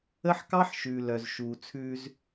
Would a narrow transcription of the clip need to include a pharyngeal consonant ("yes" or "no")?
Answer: yes